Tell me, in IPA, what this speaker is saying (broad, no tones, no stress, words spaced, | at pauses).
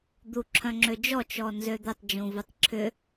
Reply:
d̪uǁʰœ̃ŋ͡ǁød͡ʒɔ t͡ʃɔnzød̪ɛtˤ d͡ʒũvutˤǁʰʏ